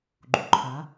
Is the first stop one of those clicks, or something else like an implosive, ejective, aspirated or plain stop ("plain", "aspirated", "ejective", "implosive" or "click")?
click